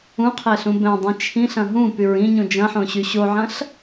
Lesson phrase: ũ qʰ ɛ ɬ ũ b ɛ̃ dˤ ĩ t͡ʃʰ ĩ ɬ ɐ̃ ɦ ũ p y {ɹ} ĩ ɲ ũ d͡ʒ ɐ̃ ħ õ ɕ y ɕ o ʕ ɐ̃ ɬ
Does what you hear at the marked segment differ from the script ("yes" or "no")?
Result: no